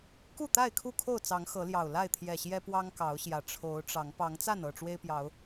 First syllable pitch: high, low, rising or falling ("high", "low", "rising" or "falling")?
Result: falling